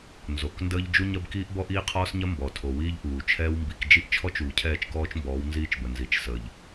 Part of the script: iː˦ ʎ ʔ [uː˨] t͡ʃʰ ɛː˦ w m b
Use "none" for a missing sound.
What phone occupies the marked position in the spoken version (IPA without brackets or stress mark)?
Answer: uː˨